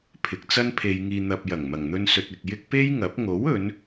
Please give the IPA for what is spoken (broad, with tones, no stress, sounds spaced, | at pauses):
pʰ ɪ˨˥ k̚ t͡s ɐ˥ n pʰ e˧ j ŋ iː˧ n̪ ɐ˨ p̚ j ɐ˨˩ ŋ m ɐ˨˩ ŋ n̪ ɵ˧ n s ɵ˨ t̚ ɪ˨ k̚ j ɪ˥ k̚ p e˥ j ŋ ɐ˨˥ p̚ ŋ o˨˥ w ɵ˨˧ n